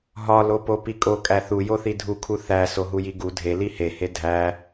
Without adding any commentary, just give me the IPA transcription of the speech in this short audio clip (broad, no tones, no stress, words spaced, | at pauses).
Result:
ɦɒlopo pikʼokʼæ θujoθi dʱukʰu θæ soɦujiɡu dʱeli hehe dʱæ